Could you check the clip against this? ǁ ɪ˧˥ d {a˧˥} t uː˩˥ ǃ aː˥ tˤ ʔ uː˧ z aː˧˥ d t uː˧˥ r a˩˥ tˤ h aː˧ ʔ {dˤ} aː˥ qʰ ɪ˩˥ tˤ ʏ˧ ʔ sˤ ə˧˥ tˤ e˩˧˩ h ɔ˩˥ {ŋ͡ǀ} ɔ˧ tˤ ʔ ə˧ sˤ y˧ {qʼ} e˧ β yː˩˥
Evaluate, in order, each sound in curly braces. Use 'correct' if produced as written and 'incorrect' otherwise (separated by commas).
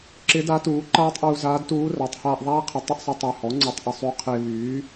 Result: correct, incorrect, correct, incorrect